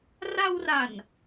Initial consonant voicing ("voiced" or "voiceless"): voiced